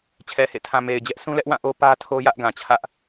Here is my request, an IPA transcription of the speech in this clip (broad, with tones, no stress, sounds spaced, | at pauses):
t͡ɕʰ ɛ˨ h ḛ˦˨ tʰ ã˨ m e˨ ɪ̯ d͡ʑ ɛ˦ ʔ s ũ˦ l ɛ˦ ʔ w ã˦˨ ʔ o˦ p ä˦ tʰ o˦ j ä˦ ʔ ɡ ã˨ t͡ɕʰ ä˦ ʔ